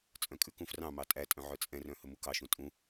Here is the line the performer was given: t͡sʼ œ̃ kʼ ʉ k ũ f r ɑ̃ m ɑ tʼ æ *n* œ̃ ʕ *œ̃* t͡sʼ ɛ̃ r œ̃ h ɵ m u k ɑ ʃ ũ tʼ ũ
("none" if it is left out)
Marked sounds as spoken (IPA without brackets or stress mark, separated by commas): tʼ, œ